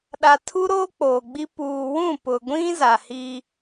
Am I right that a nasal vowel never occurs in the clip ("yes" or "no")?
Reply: no